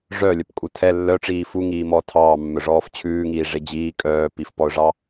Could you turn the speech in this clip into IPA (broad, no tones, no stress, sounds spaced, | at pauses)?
ʐ œ lʲ œ p kʼ u tʰ ɛ lː œ ʈ͡ʂ iː f u ŋ iː m ɔː tʰ ɑː mː œ ʐ ɔː f t͡ɕʰ ʉː ŋ iː ʐ e d͡ʑ iː kʼ œː p i f p ɔ ʊ̯ ʐ ɑ